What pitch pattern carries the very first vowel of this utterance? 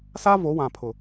high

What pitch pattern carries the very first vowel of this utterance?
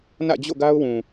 falling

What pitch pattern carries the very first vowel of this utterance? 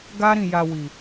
high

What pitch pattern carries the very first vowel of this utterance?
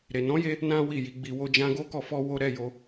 low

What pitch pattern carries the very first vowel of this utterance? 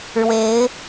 rising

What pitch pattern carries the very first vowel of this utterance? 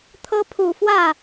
high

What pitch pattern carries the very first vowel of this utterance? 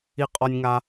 high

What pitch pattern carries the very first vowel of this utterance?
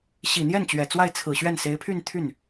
low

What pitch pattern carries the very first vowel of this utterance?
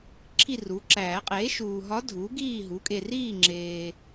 falling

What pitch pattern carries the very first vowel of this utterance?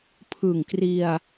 low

